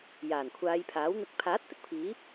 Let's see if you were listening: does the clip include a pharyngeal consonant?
no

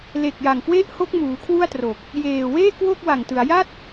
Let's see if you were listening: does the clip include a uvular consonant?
no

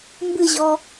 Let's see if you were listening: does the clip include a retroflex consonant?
no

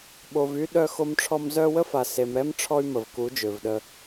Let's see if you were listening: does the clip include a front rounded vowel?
yes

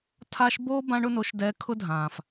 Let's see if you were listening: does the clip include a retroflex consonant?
yes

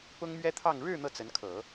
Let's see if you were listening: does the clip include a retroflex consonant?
yes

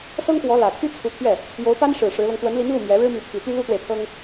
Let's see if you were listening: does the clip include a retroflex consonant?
yes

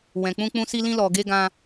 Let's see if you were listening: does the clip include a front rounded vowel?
no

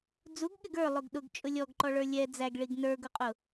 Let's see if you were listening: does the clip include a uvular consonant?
yes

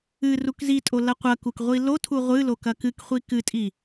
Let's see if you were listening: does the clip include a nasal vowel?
no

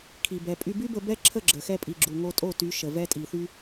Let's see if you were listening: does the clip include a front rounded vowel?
yes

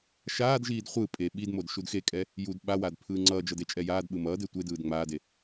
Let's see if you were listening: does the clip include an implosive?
yes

